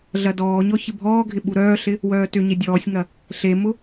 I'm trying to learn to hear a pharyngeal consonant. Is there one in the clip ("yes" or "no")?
no